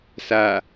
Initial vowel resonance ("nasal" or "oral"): oral